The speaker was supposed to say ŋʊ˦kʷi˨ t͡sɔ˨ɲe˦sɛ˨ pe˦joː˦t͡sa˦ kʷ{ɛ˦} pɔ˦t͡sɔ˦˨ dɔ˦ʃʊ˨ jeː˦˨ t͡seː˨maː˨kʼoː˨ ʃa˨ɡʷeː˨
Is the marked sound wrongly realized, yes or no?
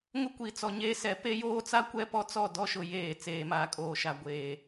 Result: no